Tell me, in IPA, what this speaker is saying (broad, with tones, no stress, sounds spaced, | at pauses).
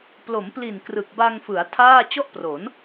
p l o˩˦ m p l i˨˩ n k r ɯ˨˩ k̚ b a˧ ŋ f ɯ˩˦ a̯ tʰ aː˥˩ t͡ɕ ɔ˥˩ ʔ p r o˩˦ n